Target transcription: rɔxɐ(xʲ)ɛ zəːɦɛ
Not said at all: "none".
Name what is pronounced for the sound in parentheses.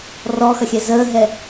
xʲ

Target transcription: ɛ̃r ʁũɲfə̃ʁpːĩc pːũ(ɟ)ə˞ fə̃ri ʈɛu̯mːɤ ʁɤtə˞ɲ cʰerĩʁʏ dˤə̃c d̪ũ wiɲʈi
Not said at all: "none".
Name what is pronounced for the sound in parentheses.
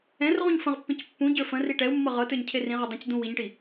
ɟ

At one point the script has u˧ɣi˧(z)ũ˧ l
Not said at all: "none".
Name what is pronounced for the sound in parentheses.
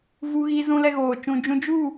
z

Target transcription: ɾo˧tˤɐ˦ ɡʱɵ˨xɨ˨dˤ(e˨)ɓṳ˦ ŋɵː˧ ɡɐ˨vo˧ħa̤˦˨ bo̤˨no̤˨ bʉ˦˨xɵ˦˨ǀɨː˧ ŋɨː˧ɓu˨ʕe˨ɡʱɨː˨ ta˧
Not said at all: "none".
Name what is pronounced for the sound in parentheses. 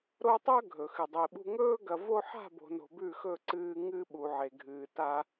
i˨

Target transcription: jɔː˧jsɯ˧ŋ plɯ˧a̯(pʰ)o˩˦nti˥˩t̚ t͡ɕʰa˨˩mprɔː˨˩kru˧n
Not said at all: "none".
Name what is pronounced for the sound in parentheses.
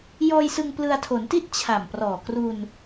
tʰ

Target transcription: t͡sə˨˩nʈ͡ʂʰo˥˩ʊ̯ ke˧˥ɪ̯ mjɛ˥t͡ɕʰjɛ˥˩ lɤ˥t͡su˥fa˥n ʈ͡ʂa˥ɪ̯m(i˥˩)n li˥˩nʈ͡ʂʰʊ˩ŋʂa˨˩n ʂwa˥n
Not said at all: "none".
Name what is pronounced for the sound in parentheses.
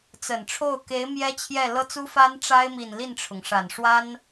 i˨˩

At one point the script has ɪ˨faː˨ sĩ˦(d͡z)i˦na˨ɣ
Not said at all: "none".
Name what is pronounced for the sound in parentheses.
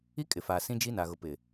d͡ʒ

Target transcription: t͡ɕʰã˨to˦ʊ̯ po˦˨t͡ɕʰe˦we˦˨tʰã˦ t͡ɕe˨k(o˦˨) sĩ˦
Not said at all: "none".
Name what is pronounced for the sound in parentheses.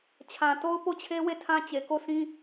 o˦˨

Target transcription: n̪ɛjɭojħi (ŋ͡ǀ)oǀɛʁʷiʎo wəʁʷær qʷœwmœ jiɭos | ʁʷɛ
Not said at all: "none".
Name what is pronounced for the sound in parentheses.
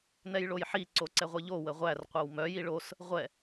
ǀ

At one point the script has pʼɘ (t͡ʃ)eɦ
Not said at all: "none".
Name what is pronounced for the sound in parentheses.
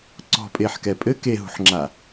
k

